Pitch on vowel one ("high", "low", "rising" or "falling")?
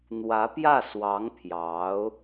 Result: rising